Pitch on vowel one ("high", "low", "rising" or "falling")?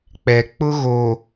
low